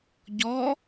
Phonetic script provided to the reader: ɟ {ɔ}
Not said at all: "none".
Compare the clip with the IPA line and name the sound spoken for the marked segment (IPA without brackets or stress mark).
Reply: ɔ